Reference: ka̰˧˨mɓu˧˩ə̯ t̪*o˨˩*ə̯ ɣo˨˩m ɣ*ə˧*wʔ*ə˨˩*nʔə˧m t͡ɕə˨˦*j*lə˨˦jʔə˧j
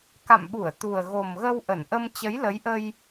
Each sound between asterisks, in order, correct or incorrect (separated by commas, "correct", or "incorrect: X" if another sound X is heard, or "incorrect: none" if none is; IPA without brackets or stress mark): incorrect: u˨˩, correct, incorrect: ə˧˩, correct